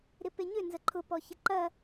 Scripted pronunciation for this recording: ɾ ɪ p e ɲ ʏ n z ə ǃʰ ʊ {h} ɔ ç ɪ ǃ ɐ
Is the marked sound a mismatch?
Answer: yes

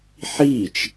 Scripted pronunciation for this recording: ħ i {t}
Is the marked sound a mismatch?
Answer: yes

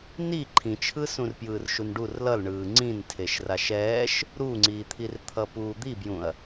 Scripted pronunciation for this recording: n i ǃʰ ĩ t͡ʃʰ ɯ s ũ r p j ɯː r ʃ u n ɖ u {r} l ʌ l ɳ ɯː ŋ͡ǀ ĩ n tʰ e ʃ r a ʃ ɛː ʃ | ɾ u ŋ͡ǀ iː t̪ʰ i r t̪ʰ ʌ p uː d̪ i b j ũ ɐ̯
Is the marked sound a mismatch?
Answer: no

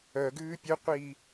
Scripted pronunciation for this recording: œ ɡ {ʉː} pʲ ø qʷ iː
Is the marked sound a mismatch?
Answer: no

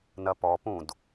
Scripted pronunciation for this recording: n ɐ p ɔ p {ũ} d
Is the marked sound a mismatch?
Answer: no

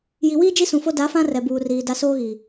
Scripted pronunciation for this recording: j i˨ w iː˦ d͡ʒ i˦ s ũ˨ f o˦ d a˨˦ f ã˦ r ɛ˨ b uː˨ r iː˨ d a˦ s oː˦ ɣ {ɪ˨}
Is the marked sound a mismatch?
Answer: yes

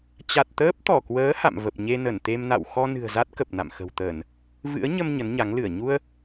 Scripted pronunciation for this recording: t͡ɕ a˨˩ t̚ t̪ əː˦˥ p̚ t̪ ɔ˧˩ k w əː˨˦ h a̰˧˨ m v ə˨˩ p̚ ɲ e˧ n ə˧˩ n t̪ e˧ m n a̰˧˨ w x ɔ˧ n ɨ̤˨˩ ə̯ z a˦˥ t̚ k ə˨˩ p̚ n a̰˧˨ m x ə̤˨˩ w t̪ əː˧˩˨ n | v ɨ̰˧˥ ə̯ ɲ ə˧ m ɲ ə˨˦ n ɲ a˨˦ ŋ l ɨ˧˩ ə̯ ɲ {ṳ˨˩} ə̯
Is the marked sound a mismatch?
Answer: yes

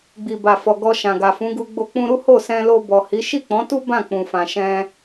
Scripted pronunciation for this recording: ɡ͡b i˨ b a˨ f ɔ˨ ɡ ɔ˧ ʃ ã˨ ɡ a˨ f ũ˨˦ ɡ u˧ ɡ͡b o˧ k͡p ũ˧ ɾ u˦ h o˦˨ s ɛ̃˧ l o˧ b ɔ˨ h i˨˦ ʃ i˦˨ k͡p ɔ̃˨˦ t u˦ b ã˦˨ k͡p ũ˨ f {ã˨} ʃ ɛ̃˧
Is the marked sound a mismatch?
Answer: no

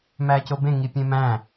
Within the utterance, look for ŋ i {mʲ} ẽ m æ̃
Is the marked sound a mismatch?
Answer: yes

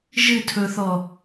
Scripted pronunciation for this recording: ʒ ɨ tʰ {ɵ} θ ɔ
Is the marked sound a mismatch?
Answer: no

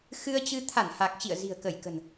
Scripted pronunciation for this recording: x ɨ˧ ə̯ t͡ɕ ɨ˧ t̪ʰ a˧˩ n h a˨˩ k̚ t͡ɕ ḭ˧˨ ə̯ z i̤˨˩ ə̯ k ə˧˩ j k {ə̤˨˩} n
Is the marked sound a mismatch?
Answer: no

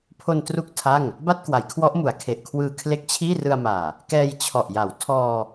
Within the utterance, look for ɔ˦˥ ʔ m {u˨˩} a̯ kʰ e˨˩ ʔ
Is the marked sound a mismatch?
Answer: yes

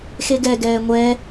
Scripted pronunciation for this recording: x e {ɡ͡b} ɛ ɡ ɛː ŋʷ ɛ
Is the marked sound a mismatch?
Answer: yes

